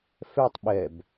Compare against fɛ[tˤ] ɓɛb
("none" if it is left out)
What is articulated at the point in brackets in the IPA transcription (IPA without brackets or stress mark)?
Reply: tˤ